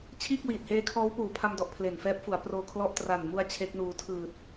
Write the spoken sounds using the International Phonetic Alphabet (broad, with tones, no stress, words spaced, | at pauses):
t͡ɕʰiː˥˩k̚wiː˨˩t̚heː˦˥kʰɔː˦˥w puː˨˩pʰa˧mdɔ˨˩ʔ pʰle˨˩nfɛː˦˥p̚fu˩˦a̯ proː˧kʰlɔ˦˥ʔ tra˨˩nmu˧a̯ t͡ɕʰe˦˥k̚nuː˧ tʰɯː˨˩t̚